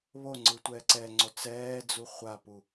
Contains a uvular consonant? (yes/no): yes